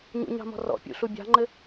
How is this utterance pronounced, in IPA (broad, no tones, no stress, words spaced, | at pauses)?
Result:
ɲṵɲɑ̤mɔ̤ rɔ̰pʲṵɬu bʲɑ̤ŋ͡ǃɘ